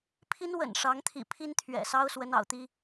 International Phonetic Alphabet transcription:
pʰ i˥ n w ə̰˨˩ n ʂ ɑ˧˥ ŋ t̪ʰ ḭ˨˩ pʰ i˥ n t̪ʰ ɥ ɛ̰˨˩ s ɑ˥ ʊ̯ s w ə˧˥ n ɑ̰˨˩ ʊ̯ t̪ i˥

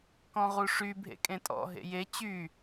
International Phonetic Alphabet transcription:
k ɔ̃ ʁ u ʂ y bʱ ḛ kʼ ẽ tʼ ɔ̰ ɦ ḛ j e t͡ɕ y

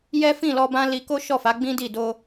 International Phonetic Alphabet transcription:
j ɛ˦ f ĩ˦˨ l ɔ˧ b ã˦ l i˧ k o˦ ʃ ɔ˦˨ f a˨˦ ɡ͡b ĩ˦ d i˦˨ d o˧

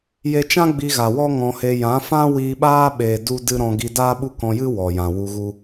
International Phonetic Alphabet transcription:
j e˧ t͡ʃ ã˦ ɡ͡b i˧ ɣ a˨ w ɔ˦ ŋ ɔ̃˧ h e˧ j ã˨˦ f ã˦ w iː˧ ɓ aː˦ ɓ eː˨ d u˦ d ɨ˦ ɾ ɔ̃˧ ɡ i˧ d aː˦ ɓ u˦ k ɔ̃˧ j ɨ˦ w ɔ˨ j ã˨ w u˧ ɣ u˦

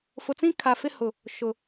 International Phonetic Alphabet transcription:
f ʊ˨ t͡s ĩ˦ kʰ a˨ f ɪ˦ h ʊ˨ | ʃ ʊ˨

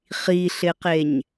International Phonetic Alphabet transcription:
χ i ɬ ɪ q e ɲ

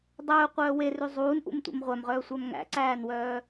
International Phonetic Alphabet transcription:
dˤ ɵː qʷ œː w e r ʉ zˤ uː n ʔ ṵ m tʷ ḛ m ʁʷ æ m ʁ œː sʷ æ m ŋ æ̰ ǀ æː n w œː

